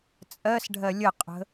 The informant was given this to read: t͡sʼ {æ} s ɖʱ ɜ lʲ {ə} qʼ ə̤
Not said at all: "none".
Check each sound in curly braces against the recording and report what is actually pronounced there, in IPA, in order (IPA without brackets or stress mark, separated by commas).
ɜ, ə